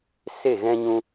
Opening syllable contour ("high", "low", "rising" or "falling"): falling